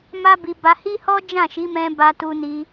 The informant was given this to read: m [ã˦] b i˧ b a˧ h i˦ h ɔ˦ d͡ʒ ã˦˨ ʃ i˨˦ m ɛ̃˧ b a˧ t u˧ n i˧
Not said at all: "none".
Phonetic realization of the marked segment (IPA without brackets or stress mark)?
a˦